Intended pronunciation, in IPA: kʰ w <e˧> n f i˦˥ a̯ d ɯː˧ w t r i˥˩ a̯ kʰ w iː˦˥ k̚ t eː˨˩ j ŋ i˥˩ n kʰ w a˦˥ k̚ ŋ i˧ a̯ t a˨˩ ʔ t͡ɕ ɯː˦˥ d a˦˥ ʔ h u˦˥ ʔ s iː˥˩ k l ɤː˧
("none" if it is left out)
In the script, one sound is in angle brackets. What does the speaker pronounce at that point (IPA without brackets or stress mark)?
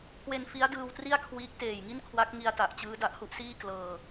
e˧